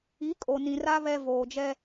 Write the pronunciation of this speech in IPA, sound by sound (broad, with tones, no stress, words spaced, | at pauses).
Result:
i˨˦ kʼo˨nĩ˨ra˦ βɛ˦ voː˨d͡ʒɛ˦